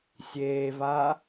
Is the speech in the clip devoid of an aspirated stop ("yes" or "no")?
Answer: yes